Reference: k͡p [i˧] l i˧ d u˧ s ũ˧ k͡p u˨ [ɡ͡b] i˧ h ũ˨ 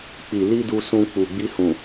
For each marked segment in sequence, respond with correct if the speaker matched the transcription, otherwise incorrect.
incorrect, correct

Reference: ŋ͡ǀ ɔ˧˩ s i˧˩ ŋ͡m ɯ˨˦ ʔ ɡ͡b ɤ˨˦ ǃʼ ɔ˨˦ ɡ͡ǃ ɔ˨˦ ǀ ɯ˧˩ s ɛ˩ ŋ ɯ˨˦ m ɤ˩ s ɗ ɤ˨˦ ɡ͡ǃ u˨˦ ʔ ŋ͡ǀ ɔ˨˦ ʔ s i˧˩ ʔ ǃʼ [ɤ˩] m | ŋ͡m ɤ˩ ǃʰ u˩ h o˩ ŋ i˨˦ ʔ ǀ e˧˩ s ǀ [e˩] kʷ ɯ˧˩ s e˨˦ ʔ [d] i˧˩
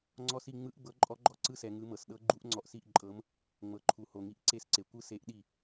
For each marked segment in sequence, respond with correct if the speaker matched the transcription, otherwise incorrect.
incorrect, correct, incorrect

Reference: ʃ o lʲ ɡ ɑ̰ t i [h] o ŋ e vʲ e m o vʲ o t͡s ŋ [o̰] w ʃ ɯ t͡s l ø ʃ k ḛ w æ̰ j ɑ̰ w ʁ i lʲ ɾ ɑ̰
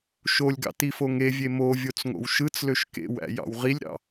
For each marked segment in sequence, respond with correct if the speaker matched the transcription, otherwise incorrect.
incorrect, correct

